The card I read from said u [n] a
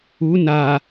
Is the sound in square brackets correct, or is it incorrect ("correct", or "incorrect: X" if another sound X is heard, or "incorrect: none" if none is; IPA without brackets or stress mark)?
correct